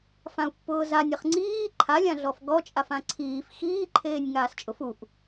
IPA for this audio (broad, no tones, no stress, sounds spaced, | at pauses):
f ã u̯ pː ʊː z a nʲ ɪ χ ŋ͡ǀ iː ǃʰ a lʲ ã ɮ ɔ f ɡ ɔ t͡ʃʼ a f ã ǀʰ iː f x iː ǃʰ eː nʲ ŋ aː s t͡ʃʼ ʊ f u ʔ